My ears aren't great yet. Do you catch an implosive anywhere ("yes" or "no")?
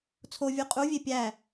no